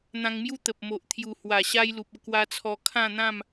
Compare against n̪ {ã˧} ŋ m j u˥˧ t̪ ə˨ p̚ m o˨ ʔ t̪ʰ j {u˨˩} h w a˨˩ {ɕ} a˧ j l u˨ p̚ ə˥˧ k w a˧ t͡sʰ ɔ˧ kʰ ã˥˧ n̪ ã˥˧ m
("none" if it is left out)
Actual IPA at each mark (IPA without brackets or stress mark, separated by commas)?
ã˧, u˨˩, ɕ